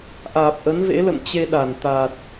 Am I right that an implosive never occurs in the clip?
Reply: no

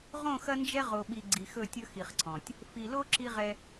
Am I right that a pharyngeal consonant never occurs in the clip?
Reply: yes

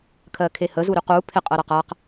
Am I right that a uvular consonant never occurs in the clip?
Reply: no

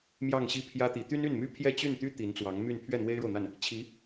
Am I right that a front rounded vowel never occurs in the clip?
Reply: no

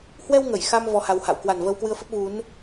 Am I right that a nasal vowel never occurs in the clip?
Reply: yes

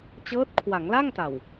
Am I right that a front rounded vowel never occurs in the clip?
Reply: yes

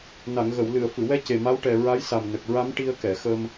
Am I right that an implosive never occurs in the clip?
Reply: yes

